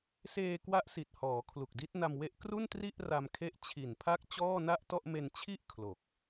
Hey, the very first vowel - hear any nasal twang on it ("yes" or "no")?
no